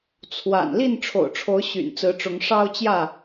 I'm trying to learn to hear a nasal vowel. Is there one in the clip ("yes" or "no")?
no